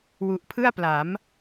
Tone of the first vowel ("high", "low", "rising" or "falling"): low